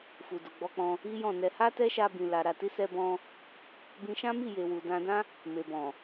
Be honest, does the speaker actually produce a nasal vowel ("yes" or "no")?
yes